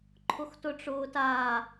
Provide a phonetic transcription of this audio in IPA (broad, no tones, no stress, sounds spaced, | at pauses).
ǃʰ ʊ x t ʊ ʈ͡ʂ ʊː t aː